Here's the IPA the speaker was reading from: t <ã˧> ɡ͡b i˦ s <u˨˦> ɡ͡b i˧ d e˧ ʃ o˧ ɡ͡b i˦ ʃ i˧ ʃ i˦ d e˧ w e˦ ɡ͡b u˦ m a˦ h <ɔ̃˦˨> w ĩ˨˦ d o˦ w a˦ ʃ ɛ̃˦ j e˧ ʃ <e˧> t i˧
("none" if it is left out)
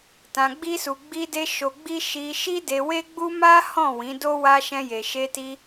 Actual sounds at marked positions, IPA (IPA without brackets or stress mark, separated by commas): ã˧, u˧, ɔ̃˦˨, e˧